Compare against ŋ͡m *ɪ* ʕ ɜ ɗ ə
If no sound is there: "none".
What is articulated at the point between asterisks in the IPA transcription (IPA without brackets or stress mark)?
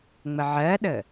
ə